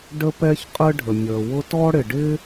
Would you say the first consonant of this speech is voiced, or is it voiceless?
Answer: voiced